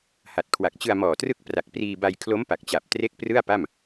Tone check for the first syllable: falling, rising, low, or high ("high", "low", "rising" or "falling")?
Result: low